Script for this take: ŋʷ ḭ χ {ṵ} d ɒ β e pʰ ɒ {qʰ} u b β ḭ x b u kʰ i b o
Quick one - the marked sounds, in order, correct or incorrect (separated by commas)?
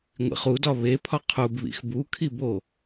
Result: incorrect, correct